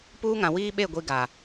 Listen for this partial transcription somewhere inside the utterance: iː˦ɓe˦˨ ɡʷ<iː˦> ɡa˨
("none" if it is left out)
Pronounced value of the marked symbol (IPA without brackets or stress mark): i˦